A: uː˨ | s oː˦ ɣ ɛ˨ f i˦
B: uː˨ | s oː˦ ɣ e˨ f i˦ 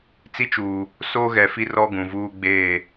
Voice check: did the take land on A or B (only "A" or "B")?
A